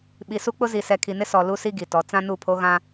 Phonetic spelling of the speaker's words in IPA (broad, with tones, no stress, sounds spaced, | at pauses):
ɓ i˨ s u˦ k͡p ʊ˦ z i˨ s ɛ˨ kʰ i˨ n ɪ˦ s ɔ˨ l u˦ s i˦ ɡ i˨ t ɔ˨˦ t͡s ã˦ n u˦˨ pʰ o˦ ɣ ã˦